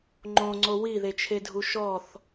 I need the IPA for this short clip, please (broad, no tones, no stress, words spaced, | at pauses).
ŋ͡ǃõŋ͡ǀo wiðet͡ʃʰedʱu ʃɔθ